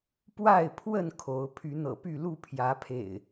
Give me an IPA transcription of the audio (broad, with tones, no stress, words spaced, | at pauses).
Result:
pwa˥˨ɪ̯pʰwə˥˨n kʰo˨˦ʊ̯ pʰy˨˦n̪ɤ̰˨˩py˥˨ lu˥˨pʰjä˨˦pʰḛ˨˩ɪ̯